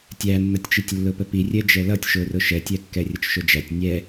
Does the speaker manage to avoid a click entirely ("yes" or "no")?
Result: yes